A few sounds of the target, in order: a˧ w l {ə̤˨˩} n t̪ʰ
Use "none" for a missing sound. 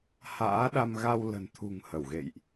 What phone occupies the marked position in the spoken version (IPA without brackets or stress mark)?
ə̤˨˩